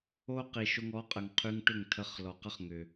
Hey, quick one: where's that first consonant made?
uvula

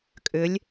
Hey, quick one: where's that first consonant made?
velum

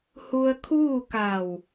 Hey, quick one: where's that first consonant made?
throat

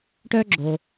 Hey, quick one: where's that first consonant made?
retroflex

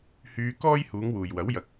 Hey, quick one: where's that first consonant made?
throat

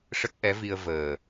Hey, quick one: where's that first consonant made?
retroflex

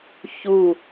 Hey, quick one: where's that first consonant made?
palate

